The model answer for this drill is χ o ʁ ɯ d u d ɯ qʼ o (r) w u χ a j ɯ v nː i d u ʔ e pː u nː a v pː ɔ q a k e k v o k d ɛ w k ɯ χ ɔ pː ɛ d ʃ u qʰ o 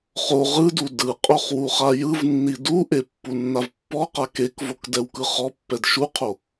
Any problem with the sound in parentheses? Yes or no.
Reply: yes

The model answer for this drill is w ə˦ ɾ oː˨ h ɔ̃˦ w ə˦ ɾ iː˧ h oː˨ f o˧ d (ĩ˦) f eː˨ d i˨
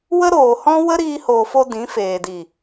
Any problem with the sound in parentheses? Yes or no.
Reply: yes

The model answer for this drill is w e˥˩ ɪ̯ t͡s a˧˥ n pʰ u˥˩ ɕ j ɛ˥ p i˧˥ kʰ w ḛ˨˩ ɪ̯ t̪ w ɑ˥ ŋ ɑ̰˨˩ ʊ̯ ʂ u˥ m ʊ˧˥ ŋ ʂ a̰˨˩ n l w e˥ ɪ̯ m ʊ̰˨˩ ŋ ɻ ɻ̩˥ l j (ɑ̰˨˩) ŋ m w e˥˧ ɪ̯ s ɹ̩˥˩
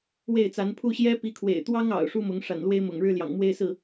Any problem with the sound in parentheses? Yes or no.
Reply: no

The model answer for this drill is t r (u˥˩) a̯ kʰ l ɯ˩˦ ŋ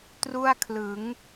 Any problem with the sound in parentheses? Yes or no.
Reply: no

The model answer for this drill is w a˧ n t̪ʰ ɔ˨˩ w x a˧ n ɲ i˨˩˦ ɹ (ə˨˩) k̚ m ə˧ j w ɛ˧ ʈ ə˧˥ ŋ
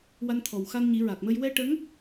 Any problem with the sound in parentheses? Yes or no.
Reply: yes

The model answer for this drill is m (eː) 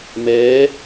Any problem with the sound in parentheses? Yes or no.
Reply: yes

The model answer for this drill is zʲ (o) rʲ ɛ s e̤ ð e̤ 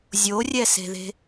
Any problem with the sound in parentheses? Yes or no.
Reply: no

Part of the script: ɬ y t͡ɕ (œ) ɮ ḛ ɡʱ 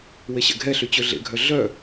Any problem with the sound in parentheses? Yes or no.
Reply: yes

